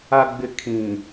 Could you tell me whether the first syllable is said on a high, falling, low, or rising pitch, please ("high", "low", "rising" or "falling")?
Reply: low